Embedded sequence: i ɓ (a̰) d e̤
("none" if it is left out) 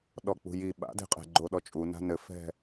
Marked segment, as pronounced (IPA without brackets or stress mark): a̰